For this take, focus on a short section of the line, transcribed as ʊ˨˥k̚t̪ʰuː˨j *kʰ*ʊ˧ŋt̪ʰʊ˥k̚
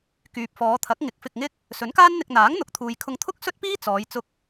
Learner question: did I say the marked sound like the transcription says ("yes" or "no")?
yes